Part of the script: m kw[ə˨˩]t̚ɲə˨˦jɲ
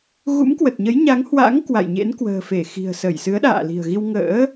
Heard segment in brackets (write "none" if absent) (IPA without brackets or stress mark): ə˨˩